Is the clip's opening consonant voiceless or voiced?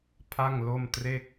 voiceless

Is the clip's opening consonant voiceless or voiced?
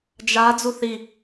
voiced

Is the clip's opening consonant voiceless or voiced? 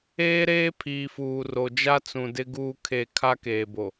voiced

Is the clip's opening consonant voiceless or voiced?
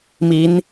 voiced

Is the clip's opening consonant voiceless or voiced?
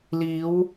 voiced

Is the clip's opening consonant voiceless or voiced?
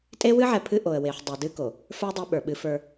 voiceless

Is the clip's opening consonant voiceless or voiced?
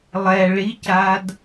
voiced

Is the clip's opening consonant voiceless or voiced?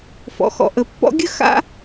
voiceless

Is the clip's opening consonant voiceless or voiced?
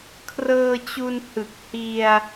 voiceless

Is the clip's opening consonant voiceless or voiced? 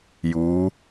voiced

